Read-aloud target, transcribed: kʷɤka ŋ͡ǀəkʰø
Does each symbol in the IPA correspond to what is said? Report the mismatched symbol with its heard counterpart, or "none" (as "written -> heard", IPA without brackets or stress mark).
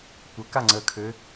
none